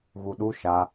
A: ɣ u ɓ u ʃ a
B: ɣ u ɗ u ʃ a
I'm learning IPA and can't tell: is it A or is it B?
B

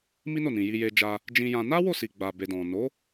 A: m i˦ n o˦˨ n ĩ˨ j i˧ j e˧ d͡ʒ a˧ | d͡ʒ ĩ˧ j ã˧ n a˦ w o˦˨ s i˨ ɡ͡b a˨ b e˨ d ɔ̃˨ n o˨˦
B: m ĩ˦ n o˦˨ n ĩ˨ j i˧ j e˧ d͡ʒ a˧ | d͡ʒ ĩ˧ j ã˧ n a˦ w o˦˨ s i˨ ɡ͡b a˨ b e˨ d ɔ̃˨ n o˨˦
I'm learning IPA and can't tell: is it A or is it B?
A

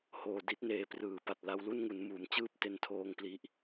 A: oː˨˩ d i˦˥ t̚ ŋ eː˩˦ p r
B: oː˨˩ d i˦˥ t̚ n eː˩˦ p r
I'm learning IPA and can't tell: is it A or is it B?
B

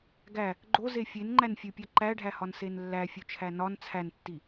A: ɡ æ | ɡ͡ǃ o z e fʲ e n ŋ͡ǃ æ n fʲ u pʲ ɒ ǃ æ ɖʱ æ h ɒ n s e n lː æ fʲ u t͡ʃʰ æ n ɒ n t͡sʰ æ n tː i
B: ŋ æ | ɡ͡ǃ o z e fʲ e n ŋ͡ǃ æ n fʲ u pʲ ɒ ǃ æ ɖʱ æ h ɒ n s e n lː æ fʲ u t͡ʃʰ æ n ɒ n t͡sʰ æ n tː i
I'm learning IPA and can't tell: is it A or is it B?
A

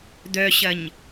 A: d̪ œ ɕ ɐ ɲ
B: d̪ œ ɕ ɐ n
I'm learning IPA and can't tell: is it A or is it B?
A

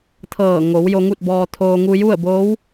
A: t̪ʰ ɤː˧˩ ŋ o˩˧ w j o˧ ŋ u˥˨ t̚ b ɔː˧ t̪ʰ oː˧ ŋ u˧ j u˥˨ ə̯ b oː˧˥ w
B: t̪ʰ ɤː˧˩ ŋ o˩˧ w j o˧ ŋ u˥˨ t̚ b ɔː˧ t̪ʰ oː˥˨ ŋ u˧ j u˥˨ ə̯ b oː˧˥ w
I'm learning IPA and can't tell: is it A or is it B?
A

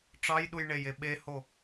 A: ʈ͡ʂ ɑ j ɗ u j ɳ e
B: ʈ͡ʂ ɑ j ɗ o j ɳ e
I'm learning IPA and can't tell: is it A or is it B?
A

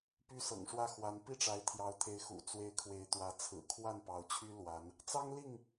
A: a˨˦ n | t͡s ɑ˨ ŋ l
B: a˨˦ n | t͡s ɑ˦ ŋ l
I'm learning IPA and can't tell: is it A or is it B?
B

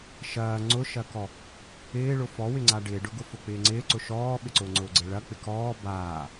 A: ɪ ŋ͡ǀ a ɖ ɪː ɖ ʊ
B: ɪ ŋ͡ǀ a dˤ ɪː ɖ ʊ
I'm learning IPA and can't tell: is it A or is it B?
A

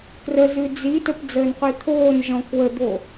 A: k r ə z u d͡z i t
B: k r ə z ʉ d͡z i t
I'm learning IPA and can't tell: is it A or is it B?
B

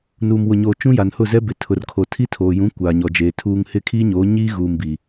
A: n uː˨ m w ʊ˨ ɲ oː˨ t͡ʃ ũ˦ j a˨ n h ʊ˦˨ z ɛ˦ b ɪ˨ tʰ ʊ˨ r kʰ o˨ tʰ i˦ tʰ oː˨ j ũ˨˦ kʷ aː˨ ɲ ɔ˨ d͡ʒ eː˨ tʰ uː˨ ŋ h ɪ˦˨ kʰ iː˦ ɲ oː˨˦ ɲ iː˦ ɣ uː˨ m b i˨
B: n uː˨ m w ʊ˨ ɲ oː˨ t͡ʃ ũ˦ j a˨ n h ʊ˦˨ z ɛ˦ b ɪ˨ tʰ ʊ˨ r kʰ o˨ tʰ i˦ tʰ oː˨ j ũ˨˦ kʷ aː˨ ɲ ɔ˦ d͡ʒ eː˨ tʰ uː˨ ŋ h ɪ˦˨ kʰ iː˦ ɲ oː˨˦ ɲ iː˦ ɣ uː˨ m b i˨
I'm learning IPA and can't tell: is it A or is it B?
A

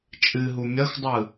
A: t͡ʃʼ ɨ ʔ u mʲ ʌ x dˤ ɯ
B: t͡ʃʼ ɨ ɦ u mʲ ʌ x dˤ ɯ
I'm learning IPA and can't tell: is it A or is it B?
B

